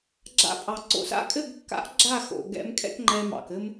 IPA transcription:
ɡ͡ǁ a̰˧ pʼ ɑ˨ ǀ o̰˧ s a̰˦ kʼ ɘ˦˨ ɡ kː a̰˨˦ ʔ ɡ͡ǁ a˦˨ x o̰˨ ɡ ɛ̰˧ m kʼ ɛ̰˦ k ŋ͡ǃ ɛ˧ m ɑ̰˨ k ɘ˧ m

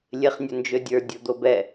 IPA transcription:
lʲ e χ nʲ ɵ n d͡ʒ ø dʲ ə˞ dʲ o d̪ o b ɛ

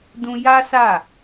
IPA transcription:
d ũ˧ j a˦ s a˦˨

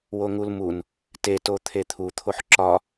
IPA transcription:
w o ŋ u l m u n | t e t o t̪ʰ e t̪ʰ u t̪ʰ o ħ ǁ ɒ

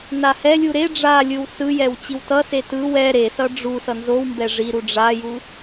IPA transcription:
n a h ɛ lʲ u ɾ e ɖ͡ʐ a lʲ ɯ w s ɯ j ɛ w t͡ɕ i w t ʌ s e t ɯ w ɛ ɾ e s ʌ ɖ͡ʐ u s ʌ n z o w m b ɛ ʐ i ɾ u ɖ͡ʐ a j u

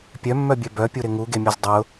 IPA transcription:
pʲ œ mː œ bʲ œ b œ pʲ u ɾ ɪ ŋ u ɡ e mʲ ʊ z dˤ ʊ

